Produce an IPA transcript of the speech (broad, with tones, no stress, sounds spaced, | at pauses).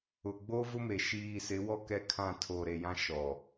ʊ˨ ɡ͡b o˦ v ʊ˦ m e˨ ʃ iː˨ s ɪ˨˦ w ɔ˦˨ k ɛ˦ kʰ ã˦˨ tʰ o˨ ɾ e˨ j ã˦ ʃ ɔ˨